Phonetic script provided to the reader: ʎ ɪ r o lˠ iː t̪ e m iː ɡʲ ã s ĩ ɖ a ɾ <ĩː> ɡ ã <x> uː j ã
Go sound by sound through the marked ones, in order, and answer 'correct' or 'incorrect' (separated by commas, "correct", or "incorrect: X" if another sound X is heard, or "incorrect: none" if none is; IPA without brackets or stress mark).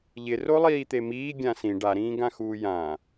correct, correct